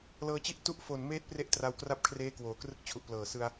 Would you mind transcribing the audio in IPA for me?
l ɤː˧ t͡ɕ i˥˩ ʔ t u˥˩ ʔ f o˨˩ n m eː˦˥ t̚ p r e˥˩ ʔ t r a˧ w k r a˥˩ p̚ kʰ r eː˦˥ k w oː˩˦ k r ɯ˦˥ k̚ t͡ɕʰ u˨˩ ʔ p l ɤː˨˩ s ɯ˧ a̯

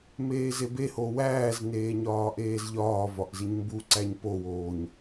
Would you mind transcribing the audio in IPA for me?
m eː z e b e h o w æː z n eː ɲ ɒː ʔ eː z ʎ ɒː v ɒ ʔ z i ɲ m b u ǀ æ ɲ p o w oː ɲ

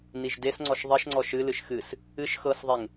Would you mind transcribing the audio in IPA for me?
n i ʒ d e s ŋ͡ǀ ɔ ʃ ðˤ ʌ ʃ ŋ͡ǀ ɔ ʃ ɨ l ɨ ʃ x ɨ s | ɨ ʃ x ɤ s ðˤ e ŋ

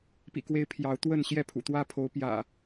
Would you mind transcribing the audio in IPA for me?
p ḭ˨˩ k w e˨˦ ɪ̯ pʰ j ɑ˨˦ ʊ̯ t̪ w ə˥˨ n ɕ j ɛ˥˨ pʰ ṵ˨˩ t̪ w ä˦ pʰ o˨˦ ʊ̯ p j ä̰˨˩

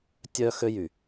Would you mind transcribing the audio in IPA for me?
tʲ œ˦ x ø˦ j y˨

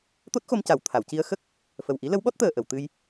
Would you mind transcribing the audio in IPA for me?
t̪ o˦˥ t̚ x o˧ m c a˨˩ w t̪ʰ a˨˩˨ w c i˧ ə̯ x ə˦˥ k̚ | f ə˨˩ w ʔ i˧˥ l ə˧˥ w ɓ ɔ˦˥ t̚ t̪ əː˨˩ ʔ ə˨˩˨ w t̪ ɨ˧ j

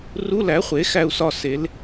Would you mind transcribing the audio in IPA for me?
r u˧˥˧ l æ˩˥ χʷ e˩˥ x æ˥˨ u̯ s ɒ˥˨ s e˩˥ l

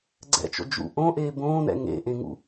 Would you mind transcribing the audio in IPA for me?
ɡ͡ǀ ɛ̰ t͡ʃ o̰ d͡ʒ ṵ ʔ õ ʔ eː b õː n ɛ̰ ŋ ḛ ʔ ẽ ŋ ṵ

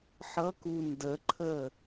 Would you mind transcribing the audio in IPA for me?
ħ ʌ k u n d ə ǃʰ ə

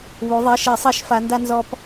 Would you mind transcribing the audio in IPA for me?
β u˩˧ ðˤ i˩˧˩ ʃ e˧˩˧ sˤ i˧˩˧ ʃ f a˩˧ n d a˧ n z ɔ˧ p

